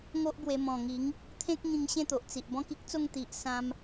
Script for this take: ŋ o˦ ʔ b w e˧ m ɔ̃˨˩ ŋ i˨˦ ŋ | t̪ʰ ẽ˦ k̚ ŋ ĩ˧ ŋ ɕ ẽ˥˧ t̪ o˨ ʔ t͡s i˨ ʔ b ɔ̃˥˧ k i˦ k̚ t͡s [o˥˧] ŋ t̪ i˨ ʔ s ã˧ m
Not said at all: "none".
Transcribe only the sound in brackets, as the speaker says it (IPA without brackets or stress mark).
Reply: o˥˧